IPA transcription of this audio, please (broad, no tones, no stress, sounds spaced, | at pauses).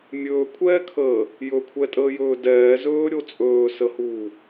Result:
mʲ ɵː kʷʰ ɛː kʰ əː | j ɵ kʷʰ ɛ tʼ əː j ɵː d ɛː z ɵː ɾʲ o t͡sʼ ɵː s ə h uː